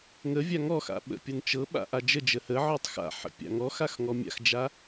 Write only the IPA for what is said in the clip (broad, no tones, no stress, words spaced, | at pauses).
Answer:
ŋəvʲa ŋɔxa̰ ɓə̰pʲɤn t͡ʃɤɓa̰ ʔad͡ʒəd͡ʒə həʕɔtˤ xa̰ħə̰ pʲa̰ŋɔxax ŋɔmʲa̰xd͡ʒa